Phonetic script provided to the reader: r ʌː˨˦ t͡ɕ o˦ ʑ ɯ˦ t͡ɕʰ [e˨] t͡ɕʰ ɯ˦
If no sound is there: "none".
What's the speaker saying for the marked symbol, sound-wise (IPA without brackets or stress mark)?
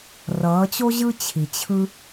i˨